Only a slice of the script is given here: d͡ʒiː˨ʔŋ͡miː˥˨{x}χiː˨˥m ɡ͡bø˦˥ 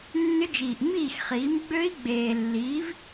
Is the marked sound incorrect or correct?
correct